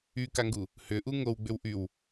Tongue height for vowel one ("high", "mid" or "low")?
high